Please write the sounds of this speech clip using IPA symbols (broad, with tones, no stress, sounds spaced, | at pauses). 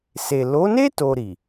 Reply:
s e˨ l o˨˦ n e˦ t o˧ ɾ i˨